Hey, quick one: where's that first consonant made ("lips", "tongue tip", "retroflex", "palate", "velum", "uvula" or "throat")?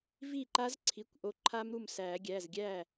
lips